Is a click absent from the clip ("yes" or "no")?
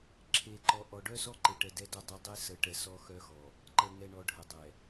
no